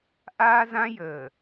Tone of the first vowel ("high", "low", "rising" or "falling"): high